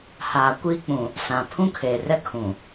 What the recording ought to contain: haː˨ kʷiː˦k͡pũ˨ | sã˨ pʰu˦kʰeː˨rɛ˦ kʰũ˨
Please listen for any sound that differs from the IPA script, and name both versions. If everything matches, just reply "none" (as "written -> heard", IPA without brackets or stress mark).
u˦ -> ũ˦